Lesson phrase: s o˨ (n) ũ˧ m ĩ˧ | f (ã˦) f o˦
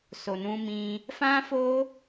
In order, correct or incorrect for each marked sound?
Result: correct, correct

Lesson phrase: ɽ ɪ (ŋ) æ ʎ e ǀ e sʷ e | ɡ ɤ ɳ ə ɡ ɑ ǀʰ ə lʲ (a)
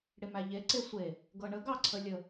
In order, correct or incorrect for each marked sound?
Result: incorrect: m, incorrect: ə

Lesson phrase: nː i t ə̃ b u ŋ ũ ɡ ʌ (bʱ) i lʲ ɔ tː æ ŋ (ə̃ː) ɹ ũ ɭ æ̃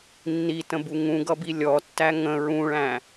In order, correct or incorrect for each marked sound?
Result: incorrect: b, incorrect: ə̃

